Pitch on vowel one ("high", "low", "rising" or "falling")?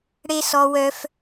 high